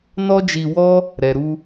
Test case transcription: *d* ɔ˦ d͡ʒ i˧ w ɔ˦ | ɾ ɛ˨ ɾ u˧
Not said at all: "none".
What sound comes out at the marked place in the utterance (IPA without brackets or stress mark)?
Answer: n